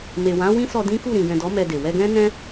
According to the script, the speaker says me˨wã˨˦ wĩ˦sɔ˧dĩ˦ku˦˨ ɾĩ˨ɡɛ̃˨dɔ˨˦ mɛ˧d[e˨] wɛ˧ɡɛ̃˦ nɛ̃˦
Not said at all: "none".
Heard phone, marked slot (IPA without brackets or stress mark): e˨